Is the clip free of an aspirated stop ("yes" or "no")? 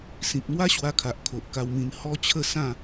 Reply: no